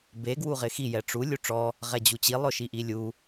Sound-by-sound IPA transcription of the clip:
b e ɡ w u ʁ ɪ x i j ɛ ʈ͡ʂ u lʲ u ʈ͡ʂ ɔ | ʁ ɛ d͡ʑ u t͡ɕ i lˠ ʊ ʃ i ʔ i lʲ u

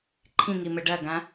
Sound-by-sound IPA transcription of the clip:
ǃʰ ĩ ŋ i m ɘ ɖ ɐ ɡ ã

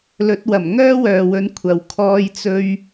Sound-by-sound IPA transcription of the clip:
l ɵ˨˥ t̚ w ɐ˨˩ m ŋ œː˥ w œː˨ w ɵ˨˥ n kʷʰ ɐ˨ w kʰ ɔː˥ j t͡s ɵ˥ ɥ

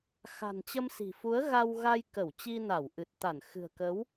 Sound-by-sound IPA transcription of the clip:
x a̤˨˩ n t͡ɕ ə˧ m s i̤˨˩ f u˨˦ ə̯ ɣ a˧ w ɣ a˧ j k ə˧˩ w t͡ɕ i˧ n a˧˩ w ʔ ɨ˨˩ t̚ t̪ a˧˩ n x ɨ̤˨˩ ə̯ k ə˨˦ w

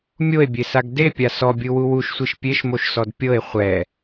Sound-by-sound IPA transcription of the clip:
mʲ o e̯ bʲ e s a ɡ d e pʲ a s ɔ bʲ ɯ w u w u ʃ sʷ i ʃ pʲ e ʃ m o ʃ s ɔ d pʲ ɤ e̯ χʷ ɛ

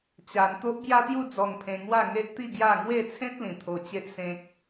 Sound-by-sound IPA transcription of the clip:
t͡ɕ a˧ n t̪ o˦ ʔ b j a˦ t̪ j u˥˧ d͡z ɔ˧ ŋ pʰ ẽ˧ ŋ w a˥˧ ŋ e˦ ʔ t̪ i˥˧ ɡ j a˥˧ ŋ w e˥˧ t͡sʰ ẽ˦ t̚ l ĩ˨˩ t̪ʰ o˧ t͡ɕ e˦ ʔ s ẽ˦ k̚

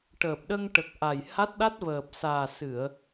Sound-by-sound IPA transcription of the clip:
ʈ əː˨˩ p̚ ɗ ə˧ ŋ ʈ ə˨˩ k̚ ʔ a˨˩ j h a˦˥ t̚ ɗ a˦˥ t̚ v əː˨˩ p̚ s aː˨˩ s ɨ˨˩˨ ə̯

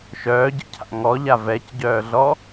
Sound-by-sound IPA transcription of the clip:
ʃ œː ɟ ə̰ cʰ a̰ ŋ ɔ ʎ a v ɛ c ɟ œː ɮ ɔ

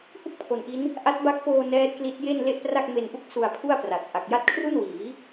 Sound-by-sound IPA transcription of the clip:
h u˥˩ k̚ pʰ o˨˩ n ʔ i˦˥ n | ʔ a˦˥ t̚ b a˦˥ k̚ p oː˧ n ɛː˦˥ t̚ k l i˦˥ t̚ j e˥˩ n l e˥˩ ʔ p r a˥˩ k̚ m e˧ n ʔ u˥˩ k̚ s u˧ a̯ pʰ u˥˩ a̯ p r a˨˩ t̚ ʔ a˨˩ k̚ j a˦˥ t̚ kʰ r u˥˩ n w iː˩˦

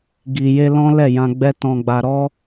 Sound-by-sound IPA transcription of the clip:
ɡ i˨ j e˧ l ɔ̃˦ l ɛ˦˨ j ã˧ ɡ͡b ɛ˧ t ɔ̃˨ ɡ͡b a˨ ɾ ɔ˧

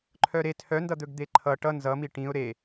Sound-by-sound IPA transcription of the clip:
ǃʰ œ ɾ e tʰ œ n d ʌ d̪ ɵ ɡ d̪ e ǃʰ ʌ ʈ ʌ n z ʌ m i ʈ ĩ ʊ̯ ɾ e

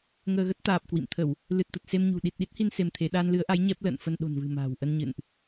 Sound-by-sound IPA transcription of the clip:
ŋ əː˧ ɣ ə˦˥ t̚ t̪ aː˨˩ p̚ k w ḭ˧˨ m t̪ʰ ə˧˩˨ w | l ɨ˨˩ t̚ t̪ ə˨˩ t̚ s e˧ m ɲ ṳ˨˩ ɗ i˨˩ t̚ ɗ i˦˥ t̚ h i˧ n s e˧ m t̪ʰ e˨˦ ɗ aː˧ n l ɨ˨˦ ə̯ ʔ a˨˦ j ɲ ɛ˦˥ p̚ l ə̰ː˧˨ n f ə˧ n ɗ o̤˨˩ n v ɨ̤˨˩ m a̤ː˨˩ w ʔ ə˧ n ɲ ɨ̰˧˨ n ʔ

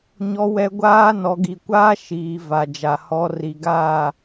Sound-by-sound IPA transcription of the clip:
ɲ ɔ˨ w ɛ˨ ɡʷ aː˦ n ɔ˨ ɡ i˨ kʷ aː˦ ʃ iː˨ v a˨ d͡ʒ a˨ h ɔ˨ r i˨ ɡ aː˦˨

